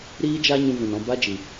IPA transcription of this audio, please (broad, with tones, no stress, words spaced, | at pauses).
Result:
ɾiː˦d͡ʒa˦ ɲũ˧vũ˨nɔ̃˧ ba˦d͡ʒi˨